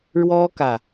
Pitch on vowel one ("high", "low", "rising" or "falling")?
high